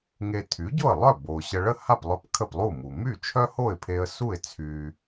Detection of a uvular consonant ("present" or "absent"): absent